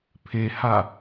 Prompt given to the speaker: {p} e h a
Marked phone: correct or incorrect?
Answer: incorrect